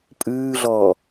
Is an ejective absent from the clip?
no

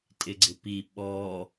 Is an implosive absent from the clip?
no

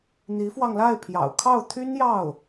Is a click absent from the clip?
yes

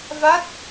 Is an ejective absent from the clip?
yes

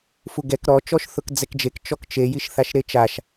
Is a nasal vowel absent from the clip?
yes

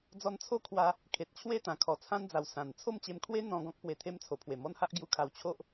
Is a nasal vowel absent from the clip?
no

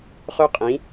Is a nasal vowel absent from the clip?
no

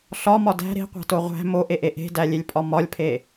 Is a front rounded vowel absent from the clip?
yes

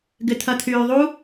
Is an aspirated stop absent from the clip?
no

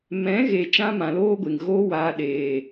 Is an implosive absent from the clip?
no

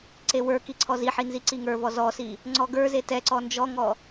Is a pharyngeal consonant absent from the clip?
no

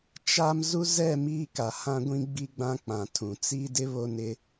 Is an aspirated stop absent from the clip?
no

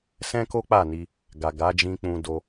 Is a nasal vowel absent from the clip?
no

